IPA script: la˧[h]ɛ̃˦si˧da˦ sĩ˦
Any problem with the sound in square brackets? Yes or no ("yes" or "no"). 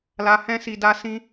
no